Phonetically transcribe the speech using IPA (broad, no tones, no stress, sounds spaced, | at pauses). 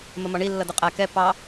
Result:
m ə m ɒ ɳ i lː ʌ d ʊ qʼ æ k ɛ p ɑ